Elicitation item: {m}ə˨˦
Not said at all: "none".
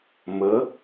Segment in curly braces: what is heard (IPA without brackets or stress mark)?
m